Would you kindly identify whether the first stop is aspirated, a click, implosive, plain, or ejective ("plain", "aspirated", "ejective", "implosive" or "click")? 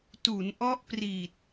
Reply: plain